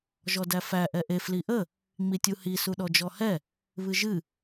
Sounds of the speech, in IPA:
ʒ ɔ d æ f æ ʔ ɛ ʔ e f l i ʔ ə | ŋ͡m i tʲ u h i s u ɗ ɔ d͡ʒ ɔ h ɛ | β ɨ ʒ ɨ

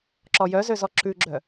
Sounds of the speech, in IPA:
ǁ ɔ j œ z ø z ɔ ǁ ʉ ɡ͡ǁ œ

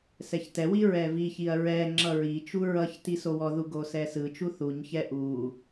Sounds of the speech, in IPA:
s ɛ ç t ɛ w i ɹ ɛ v i ç i ɐ̯ ɹ ɛ ŋ͡ǁ ʌ ɹ i t͡ʃ u ɹ ʌ ç t i s o w ɔ ð u ɡ o s ɛ s ɯ t͡ʃ u θ u ɲ ç ɛ ʔ u

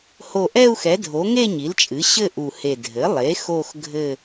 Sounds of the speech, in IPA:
h o˧˩ ʔ ɛ˥˧ u̯ x ɛ˩˥ dʱ o˩˥ ŋ e˥˧ ɲ i˩˥ l t͡ʃʼ ɨ˩˥ ɕ ɘ˥˧ ʔ u˧˩ h e˧˩ dʱ ɘ˩˥ lˠ e˩˥ x o˥˧ x ɡʱ ɘ˥˧

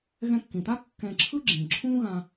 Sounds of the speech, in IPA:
ɣ ɛ̃˧ kː ĩ˩ t̪ a˥ kː ɛ̃˧ ǁʰ ɯ˥ ɡ͡ǁ ĩ˩ ǁʰ ũ˥ ɣ ã˧

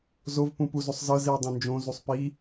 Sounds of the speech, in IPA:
z o v p ũ p u z o sˤ z ɤ z i u̯ dˤ õ n d͡ʒ õ z u sˤ p i

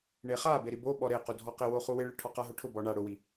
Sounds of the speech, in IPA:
ɳ e χ a b e ɾ i b o ɓ ɔ ɾ e q u dʱ ɔ q ɪ w o χ u w ɪ ɭ ɪ ʈʰ ɔ q a ɦ ʊ ʈʰ ʊ b ɔ ɳ a ɽ ʊ w i

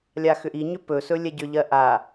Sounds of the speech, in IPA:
lʲ a x ʏ ʔ i ɲ ʏ p ɵ s ɵ lʲ ɛ ɟ ʏ ʎ ɜ ʔ a

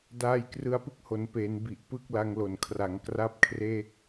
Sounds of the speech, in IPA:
d aː˧ j k r ɯ˧ a̯ p ɯ˥˩ k̚ h o˩˦ n p eː˩˦ n b i˨˩ ʔ p ɯ˦˥ k̚ l a˧ ŋ l o˨˩ n kʰ r a˩˦ ŋ k r a˥˩ p̚ kʰ r e˥˩ k̚

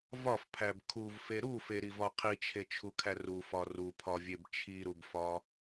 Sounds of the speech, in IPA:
v ɒ f pʰ æ b kʰ u v f e ɾ u f e ɾ i v ɒ qʰ i t͡ʃʰ e t͡ʃʰ u kʰ æ r u f ɒ r u pʰ ɒ vʲ e b t͡ʃʰ i ɾ u b f ɒ

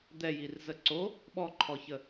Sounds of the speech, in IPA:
d̪ ɛ j i r z ə ǀ o | ɓ ɔ ǃʰ ɔ ç ə

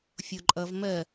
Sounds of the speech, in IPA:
fʲ o ǃʼ ʌ v m ɜ

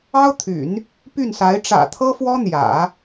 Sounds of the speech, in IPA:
ɑ˥ ʊ̯ t̪ʰ y̰˨˩˦ n | p y˥˩ n s a˧˥ ɪ̯ ʈ͡ʂ ä̰˨˩ t̪ʰ ɤ˥ f w ɔ˥ n̪ j ä̰˨˩˦

